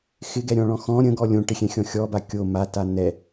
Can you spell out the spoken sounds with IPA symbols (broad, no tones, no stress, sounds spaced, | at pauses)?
x ɪ ɡ ɛ ɾʲ ɔ̃ ɭ ɔ̃ x ɔ̃ ɾʲ ə̃ ɡ ɔ lʲ õ ʈ ɪ xʲ ɛ̃ xʲ ɔ̃ xʲ ɔ b a kʲ o m a t a n̪ ɛ